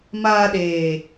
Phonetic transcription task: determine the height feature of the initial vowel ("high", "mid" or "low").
low